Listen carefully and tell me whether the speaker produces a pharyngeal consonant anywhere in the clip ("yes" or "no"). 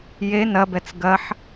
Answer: yes